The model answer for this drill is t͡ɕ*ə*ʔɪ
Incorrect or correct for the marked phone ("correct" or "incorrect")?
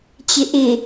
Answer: incorrect